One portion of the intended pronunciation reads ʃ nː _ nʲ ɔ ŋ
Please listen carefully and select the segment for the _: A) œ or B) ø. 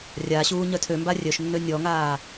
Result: B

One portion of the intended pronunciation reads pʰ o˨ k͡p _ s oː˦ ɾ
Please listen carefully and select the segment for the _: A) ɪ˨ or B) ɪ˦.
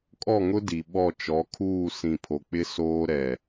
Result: B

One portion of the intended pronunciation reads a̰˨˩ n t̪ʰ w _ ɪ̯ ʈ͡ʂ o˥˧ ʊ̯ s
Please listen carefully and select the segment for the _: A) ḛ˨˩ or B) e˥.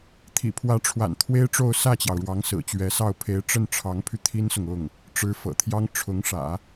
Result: B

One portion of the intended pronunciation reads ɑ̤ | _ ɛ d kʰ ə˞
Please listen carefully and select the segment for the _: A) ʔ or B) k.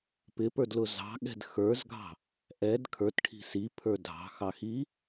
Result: A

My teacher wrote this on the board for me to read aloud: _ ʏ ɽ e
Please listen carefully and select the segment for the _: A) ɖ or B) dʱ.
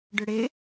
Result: A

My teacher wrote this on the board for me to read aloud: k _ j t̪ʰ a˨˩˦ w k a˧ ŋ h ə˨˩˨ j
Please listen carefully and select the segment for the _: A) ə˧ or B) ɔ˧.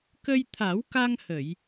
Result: A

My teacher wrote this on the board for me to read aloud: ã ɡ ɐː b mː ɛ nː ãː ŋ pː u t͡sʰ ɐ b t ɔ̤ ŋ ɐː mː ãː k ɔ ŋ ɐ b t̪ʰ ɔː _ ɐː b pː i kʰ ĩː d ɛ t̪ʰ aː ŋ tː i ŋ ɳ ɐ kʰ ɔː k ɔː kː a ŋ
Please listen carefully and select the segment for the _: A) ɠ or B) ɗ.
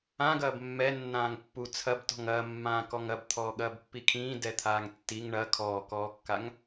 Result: A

